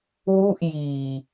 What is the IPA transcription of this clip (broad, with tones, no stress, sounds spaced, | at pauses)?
w u˥˩ ʔ j iː˨˩